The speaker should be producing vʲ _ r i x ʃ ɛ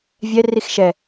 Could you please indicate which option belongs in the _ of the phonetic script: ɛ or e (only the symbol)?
ɛ